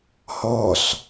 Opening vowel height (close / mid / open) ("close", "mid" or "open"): mid